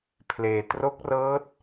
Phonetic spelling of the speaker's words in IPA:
pʰ l eː˧ t r o˦˥ k̚ r ɤː˦˥ t̚

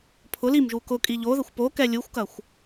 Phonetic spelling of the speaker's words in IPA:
pʰ ʊ l i m ʒ u k ʊ kʼ i ʎ o ð ə xʷ p o k ɛ lʲ u xʷ k ɐ xʷ

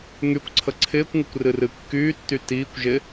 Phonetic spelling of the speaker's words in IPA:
ŋ y kʷ ǀʰ ə ǀʰ ɪː kʷ ŋ ɪ kʷ r ɨ r ɨ kː yː tː y t iː kʷ ʒ ɪ

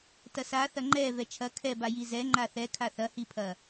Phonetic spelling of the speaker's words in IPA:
t ɐ s a θ ɐ ŋ͡ǃ ɛ v ɛ t͡ʃʰ ɐ kʰ ɛ b a j i z ɛ ŋ͡ǃ a θ ɛ kʰ a θ ɐ h i pʰ ɐ

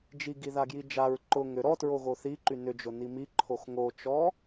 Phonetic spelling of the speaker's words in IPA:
d͡ʒ i ɡ i ð a ɡ j i d͡ʒ a ɹ ǃ ʊ ŋ ʏ ɾ ɔ t ɹ o ɣ o θ i ǃ y n ʏ d͡ʒ ʊ n i m i ǃʰ o x ŋ o t͡ʃ ɔ

